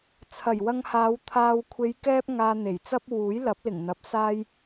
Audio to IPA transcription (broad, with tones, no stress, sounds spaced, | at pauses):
t͡sʰ ɐ˨˩ j w ɐ˧ ŋ h aː˨˧ w t̪ʰ aː˨ w kʷʰ e˨˧ j k ɛː˥ p̚ ŋ aː˧ n̪ e˨˩ j t͡s ɐ˥ p̚ w uː˨˥ j l ɐ˨˥ p̚ l ɪ˨˩ ŋ n̪ ɐ˨˥ p̚ s aː˥ j